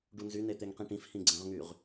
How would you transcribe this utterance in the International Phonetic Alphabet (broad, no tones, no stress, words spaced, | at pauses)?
ɖunzy net̪eŋqĩʈĩf hĩɡ͡ǀə̃ʁŋyʁ